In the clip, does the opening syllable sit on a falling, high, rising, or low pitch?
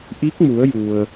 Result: rising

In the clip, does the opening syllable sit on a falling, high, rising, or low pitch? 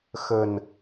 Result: low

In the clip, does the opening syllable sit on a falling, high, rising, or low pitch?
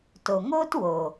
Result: low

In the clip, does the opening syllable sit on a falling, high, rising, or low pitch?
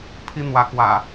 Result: high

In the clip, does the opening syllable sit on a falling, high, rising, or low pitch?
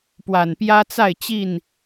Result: low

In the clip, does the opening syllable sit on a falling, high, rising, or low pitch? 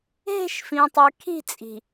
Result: falling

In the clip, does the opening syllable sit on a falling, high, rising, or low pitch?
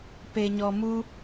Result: low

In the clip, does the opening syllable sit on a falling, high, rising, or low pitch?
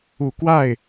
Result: low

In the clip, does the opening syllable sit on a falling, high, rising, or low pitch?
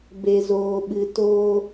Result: low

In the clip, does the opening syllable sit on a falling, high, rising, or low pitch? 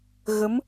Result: rising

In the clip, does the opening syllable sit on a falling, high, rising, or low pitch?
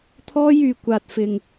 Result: high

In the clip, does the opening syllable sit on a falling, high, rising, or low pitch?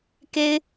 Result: high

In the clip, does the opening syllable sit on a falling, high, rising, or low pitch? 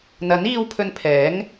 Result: rising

